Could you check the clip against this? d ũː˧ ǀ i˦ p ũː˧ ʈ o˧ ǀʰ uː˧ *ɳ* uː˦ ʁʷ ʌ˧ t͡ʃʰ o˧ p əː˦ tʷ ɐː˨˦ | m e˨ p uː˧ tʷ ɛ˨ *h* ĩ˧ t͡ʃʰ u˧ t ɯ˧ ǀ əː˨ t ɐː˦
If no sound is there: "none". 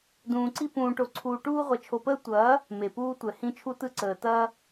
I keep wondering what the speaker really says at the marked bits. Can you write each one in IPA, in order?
ʈ, h

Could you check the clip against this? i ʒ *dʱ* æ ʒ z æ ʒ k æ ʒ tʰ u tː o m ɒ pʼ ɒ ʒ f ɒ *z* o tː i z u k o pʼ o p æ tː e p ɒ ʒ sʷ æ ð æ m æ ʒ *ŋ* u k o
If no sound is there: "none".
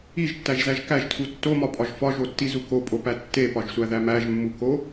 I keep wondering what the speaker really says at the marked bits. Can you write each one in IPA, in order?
tː, ʒ, mː

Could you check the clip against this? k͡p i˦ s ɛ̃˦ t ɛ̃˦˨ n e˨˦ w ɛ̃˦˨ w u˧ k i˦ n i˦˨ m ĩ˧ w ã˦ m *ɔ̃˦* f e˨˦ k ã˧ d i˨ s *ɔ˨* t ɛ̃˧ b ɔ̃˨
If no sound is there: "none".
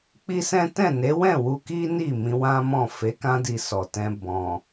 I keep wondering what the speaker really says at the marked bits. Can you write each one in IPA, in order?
ɔ̃˦˨, ɔ˨

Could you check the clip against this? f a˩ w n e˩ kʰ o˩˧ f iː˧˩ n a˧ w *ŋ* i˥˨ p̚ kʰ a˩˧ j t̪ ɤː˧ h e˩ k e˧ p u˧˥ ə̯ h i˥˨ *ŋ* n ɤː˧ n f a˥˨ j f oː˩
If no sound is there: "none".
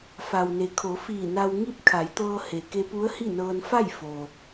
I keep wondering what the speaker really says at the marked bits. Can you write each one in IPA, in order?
ŋ, none

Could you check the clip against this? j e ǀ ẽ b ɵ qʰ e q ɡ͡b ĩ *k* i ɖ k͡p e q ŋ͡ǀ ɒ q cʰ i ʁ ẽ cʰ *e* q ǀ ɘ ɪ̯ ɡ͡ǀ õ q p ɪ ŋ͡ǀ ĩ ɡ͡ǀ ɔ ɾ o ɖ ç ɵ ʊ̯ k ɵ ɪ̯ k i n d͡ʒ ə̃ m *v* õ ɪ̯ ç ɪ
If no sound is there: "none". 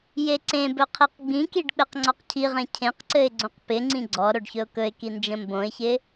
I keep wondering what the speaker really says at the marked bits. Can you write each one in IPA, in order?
k, ẽ, b

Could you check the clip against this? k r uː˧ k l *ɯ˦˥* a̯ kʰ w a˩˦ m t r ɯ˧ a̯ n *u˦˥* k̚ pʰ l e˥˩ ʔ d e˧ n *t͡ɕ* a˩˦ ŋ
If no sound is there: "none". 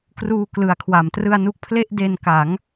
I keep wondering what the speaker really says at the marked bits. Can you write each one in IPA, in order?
ɯ˩˦, u˦˥, k

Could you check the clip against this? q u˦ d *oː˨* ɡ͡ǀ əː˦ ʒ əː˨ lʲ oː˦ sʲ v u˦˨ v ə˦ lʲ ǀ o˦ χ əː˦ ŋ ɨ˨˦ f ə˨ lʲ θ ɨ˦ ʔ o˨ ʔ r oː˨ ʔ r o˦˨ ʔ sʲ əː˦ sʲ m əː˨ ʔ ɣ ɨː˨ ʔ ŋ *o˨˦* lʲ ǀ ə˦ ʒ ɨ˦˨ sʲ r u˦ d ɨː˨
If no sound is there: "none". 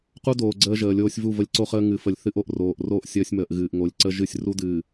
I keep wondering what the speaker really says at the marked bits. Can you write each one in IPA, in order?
oː˨, o˨˦

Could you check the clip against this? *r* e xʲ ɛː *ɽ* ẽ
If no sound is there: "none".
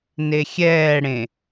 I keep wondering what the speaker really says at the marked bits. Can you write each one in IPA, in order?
n, ɽ

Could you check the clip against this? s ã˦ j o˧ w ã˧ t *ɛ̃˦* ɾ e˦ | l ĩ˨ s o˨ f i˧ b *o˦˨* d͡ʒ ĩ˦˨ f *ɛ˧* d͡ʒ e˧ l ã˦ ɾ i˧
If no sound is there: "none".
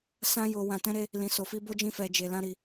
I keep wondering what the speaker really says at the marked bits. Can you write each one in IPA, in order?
ɛ̃˦, o˦, ɛ˧

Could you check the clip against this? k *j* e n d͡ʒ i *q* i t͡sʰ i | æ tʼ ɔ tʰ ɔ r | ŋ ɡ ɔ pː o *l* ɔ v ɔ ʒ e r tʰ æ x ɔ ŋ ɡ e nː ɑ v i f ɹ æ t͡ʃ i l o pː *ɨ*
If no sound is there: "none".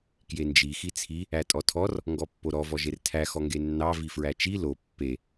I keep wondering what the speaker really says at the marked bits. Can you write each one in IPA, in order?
j, x, ɾ, e

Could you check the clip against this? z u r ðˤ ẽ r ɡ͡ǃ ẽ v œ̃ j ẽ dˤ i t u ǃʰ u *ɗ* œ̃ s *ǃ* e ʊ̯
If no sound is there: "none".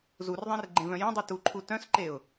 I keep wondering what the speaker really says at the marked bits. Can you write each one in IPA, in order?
t, ǃ

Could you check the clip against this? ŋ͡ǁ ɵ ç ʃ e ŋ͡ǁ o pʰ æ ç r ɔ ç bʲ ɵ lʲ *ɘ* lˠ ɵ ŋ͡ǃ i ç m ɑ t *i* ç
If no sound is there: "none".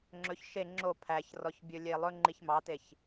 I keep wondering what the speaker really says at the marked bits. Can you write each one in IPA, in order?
e, e

